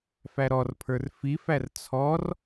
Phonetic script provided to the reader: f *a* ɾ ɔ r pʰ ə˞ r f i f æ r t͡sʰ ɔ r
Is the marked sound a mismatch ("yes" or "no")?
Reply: yes